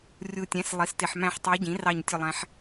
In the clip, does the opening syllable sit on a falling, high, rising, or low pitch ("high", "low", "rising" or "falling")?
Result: low